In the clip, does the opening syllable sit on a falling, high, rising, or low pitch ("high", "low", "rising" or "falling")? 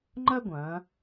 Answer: high